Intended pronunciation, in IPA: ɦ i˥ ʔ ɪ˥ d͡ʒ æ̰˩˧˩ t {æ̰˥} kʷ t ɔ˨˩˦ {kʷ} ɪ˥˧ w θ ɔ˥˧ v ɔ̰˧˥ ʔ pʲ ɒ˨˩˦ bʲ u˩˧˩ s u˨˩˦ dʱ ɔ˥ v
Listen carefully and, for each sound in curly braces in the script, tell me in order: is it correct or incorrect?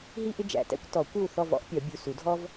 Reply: correct, correct

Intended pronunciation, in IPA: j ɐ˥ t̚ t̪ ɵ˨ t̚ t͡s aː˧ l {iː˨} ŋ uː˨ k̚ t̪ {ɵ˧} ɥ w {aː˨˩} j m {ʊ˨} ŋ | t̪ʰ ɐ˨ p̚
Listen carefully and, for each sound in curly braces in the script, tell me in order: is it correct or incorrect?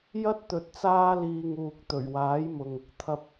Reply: correct, incorrect: ɵ˨˩, incorrect: aː˨˥, correct

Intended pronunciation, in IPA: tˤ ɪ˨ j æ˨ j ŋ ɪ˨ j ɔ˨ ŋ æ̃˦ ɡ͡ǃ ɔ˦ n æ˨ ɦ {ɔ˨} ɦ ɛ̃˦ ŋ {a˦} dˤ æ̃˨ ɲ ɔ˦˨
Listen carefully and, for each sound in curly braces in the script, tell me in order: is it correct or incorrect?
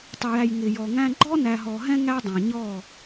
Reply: correct, incorrect: æ˦

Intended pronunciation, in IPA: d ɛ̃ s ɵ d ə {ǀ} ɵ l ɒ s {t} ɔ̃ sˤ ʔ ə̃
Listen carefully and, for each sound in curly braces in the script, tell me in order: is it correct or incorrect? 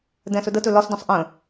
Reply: incorrect: t, incorrect: d

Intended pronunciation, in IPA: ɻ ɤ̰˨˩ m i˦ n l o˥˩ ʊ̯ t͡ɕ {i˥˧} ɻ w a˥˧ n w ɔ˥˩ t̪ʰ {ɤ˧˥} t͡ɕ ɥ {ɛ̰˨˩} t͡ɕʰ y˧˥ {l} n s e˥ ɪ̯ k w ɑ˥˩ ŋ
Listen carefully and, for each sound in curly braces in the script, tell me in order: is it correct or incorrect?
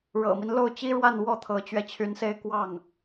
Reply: incorrect: i˥, correct, incorrect: ɛ˧, incorrect: none

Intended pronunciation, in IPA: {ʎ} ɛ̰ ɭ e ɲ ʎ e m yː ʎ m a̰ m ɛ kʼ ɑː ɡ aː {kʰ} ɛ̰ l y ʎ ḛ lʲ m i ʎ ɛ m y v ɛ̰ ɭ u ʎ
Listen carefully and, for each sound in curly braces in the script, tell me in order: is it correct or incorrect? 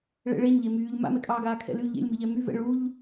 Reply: incorrect: ɭ, correct

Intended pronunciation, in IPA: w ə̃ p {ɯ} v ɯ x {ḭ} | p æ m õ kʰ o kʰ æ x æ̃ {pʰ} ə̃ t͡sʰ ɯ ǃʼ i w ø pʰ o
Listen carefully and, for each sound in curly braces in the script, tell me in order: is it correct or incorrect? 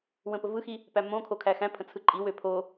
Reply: incorrect: ə, incorrect: i, correct

